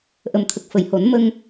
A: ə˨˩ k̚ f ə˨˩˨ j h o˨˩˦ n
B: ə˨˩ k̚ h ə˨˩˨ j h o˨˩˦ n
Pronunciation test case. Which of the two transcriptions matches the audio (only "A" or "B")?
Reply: A